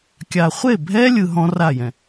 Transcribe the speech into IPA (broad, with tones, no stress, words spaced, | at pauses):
kʲa˨χʷe˦˨bʱɛ˦ lʲɯ˧ɦɔ̃˦ra˦˨jɛ̃˨